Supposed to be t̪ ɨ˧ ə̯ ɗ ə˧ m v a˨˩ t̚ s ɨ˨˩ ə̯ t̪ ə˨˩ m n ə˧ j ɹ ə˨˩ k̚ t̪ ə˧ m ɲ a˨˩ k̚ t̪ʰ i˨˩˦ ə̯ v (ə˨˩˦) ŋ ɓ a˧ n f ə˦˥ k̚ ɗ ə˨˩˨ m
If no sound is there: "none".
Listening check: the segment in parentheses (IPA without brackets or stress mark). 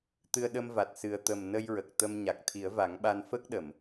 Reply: a˨˩˦